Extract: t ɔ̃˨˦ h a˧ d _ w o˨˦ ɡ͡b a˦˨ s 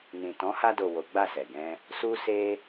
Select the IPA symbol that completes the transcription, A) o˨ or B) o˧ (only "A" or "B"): A